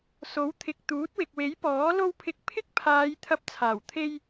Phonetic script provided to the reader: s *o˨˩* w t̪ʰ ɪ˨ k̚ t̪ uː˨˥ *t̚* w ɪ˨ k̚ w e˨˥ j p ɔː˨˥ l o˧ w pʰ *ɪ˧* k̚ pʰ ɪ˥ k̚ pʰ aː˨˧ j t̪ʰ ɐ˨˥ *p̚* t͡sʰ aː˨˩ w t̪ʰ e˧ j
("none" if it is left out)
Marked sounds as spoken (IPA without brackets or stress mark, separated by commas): o˨˥, t̚, ɪ˨˥, p̚